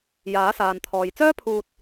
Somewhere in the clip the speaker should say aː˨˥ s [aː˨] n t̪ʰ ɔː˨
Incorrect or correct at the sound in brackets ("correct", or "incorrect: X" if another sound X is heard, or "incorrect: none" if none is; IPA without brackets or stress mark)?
correct